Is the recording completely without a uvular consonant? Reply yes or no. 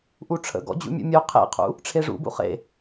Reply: no